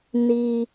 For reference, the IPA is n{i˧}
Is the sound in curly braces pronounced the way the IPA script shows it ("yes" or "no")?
no